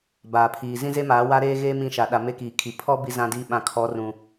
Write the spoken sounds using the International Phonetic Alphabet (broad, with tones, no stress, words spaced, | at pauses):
baː˨pʰiː˨ zĩ˦ze˦maː˨˦ wa˦ɾeː˦ɣeː˦ mĩ˦˨ʃa˨ɗa˨ me˦kiː˨kʰi˨ pʰɔ˦ bi˦zã˦diː˦ ɓã˨kʰɔ˨˦rũ˨